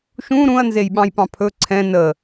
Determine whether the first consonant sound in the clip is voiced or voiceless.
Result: voiceless